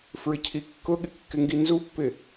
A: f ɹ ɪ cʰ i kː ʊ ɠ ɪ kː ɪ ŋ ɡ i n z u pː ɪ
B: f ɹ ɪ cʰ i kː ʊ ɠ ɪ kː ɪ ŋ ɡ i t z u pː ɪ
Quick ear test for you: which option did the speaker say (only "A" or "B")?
A